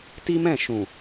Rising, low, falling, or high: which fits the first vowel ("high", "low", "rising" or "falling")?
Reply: high